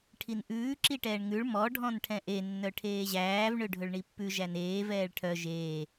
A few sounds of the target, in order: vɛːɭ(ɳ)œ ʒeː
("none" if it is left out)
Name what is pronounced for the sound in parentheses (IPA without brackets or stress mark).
ʈʰ